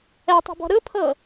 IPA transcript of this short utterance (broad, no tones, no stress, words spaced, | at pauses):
ɛtˤi̤bɔ̤ ɾɯpʰɤ